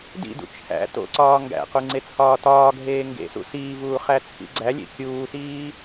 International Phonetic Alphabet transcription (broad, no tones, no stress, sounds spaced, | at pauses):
d ḭ d ṵ t͡ʃʰ æ̰ t o̰ ǀ ɒː ŋ ɡ æ̰ q u ŋ͡ǀ e t͡sʰ ɒː t ɒː ɡʱ eː ŋ ɡ ḛ s ṵ s iː v uː χ æ t͡sʰ ḭ ɡ͡ǀ æ lʲ ḛ kʲ uː s iː